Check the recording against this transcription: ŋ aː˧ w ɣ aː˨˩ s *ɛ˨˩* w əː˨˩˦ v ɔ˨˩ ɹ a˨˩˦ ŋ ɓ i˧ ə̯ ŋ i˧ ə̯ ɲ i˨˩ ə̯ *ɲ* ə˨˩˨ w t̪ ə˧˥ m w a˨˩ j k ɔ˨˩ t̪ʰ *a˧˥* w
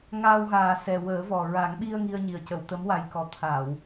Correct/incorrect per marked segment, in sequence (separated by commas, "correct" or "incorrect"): correct, incorrect, incorrect